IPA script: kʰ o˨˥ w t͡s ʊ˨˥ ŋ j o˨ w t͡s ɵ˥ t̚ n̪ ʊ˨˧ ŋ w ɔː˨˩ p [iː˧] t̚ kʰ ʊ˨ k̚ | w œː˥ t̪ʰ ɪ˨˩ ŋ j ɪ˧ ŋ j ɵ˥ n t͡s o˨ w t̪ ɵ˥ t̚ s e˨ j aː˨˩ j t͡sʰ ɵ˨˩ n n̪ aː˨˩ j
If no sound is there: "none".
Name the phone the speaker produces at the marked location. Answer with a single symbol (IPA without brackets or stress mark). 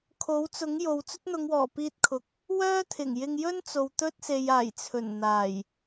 iː˧